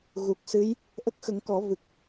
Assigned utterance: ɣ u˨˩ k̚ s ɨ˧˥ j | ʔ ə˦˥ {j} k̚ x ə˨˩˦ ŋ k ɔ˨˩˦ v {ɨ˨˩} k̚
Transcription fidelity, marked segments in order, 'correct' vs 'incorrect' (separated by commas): incorrect, correct